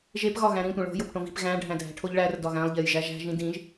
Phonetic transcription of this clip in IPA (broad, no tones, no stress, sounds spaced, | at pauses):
ʒ e p ɣ ɒ ɣ æ̃ ɾ ĩ tʷ ẽ ɭ o̤ j o p ʈ õ v i̤ p ɣ æ̃ ɖʱ æ̃ dʱ æ̤ ʈʰ o ʎ ɭ æ r d ɒ ɣ æ̃ lˠ ʎ e j ʒ æ ʒ æ̤ ʒ ĩ d ĩ ʒ